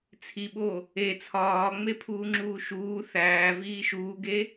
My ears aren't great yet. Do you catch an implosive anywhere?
yes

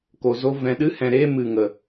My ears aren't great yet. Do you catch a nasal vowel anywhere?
yes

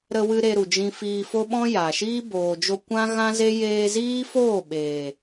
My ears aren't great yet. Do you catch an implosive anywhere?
yes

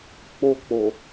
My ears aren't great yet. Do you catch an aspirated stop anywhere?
no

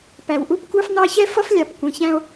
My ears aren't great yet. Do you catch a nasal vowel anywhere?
yes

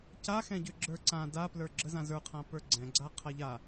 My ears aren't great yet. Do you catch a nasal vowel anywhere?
yes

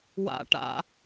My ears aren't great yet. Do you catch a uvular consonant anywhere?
no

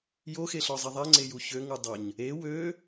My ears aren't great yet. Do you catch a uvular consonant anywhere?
no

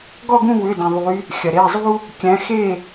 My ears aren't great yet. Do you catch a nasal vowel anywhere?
yes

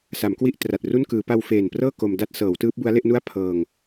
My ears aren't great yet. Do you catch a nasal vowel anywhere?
no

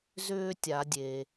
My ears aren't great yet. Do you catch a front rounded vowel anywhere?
yes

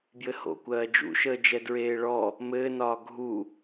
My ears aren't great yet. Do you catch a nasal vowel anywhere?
no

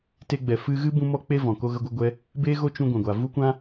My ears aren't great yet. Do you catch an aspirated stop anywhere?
no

